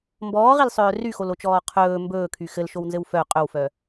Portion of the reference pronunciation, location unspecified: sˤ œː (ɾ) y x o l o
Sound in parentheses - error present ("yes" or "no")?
yes